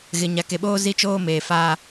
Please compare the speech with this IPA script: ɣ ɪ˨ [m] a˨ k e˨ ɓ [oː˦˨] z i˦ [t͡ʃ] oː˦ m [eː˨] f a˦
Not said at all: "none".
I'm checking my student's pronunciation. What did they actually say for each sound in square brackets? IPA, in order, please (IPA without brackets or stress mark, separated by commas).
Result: ɲ, oː˦, t͡ʃ, eː˨